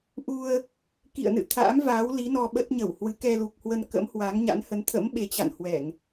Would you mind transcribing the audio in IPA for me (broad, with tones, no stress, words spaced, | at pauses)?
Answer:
ʔu˧ə̯ | kḭ˧˨ə̯nɨ̰˧˨ t̪ʰa̰ː˧˥mva˨˦wli˨˦ nɔ˧ɓə˦˥t̚ɲə˧˩whwɨ˨˦ kɛ˧lu˨˩k̚hwə˧nkə̰˧˥m hwa˨˦ŋɲa̰˧˥nhə˨˦n t̪ʰə̰˧˥m ɓe˨˦t͡ɕa̰˧˨nhwɛ˧˩˨ŋ